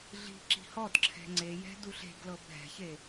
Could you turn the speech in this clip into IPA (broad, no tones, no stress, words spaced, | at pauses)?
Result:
ɮi̤ ǁi̤hɔdǁʰɛ̤ ŋ͡ǀejɛ̤ duɬe̤ɡlɤ bʱɛ̤çe